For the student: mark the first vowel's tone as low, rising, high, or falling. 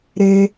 high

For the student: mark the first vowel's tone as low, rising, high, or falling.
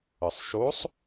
low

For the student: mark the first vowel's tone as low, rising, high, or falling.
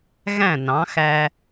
falling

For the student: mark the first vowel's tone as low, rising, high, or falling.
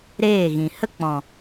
falling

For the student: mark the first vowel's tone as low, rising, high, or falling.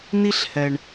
high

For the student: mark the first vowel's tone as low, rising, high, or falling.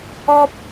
high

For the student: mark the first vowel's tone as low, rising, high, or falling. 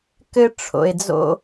high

